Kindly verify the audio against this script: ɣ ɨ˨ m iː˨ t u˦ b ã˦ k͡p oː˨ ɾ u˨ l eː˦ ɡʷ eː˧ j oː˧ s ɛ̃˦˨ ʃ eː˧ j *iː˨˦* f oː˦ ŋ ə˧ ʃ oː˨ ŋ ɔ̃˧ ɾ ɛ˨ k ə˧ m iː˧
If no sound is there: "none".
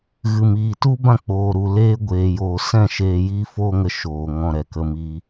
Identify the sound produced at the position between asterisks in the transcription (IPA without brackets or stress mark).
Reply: iː˦